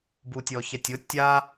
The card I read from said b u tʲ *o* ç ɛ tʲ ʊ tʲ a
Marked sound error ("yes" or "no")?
yes